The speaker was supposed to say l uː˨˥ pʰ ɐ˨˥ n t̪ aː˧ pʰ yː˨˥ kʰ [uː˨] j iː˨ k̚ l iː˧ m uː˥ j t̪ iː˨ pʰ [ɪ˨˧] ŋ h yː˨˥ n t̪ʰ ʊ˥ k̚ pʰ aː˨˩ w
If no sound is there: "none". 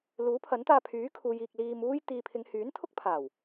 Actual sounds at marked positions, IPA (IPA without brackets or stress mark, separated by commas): uː˨, ɪ˨˧